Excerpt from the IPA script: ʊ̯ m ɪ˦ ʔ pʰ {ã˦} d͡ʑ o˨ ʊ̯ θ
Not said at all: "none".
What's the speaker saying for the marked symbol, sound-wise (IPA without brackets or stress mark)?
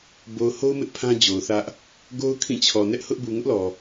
ã˦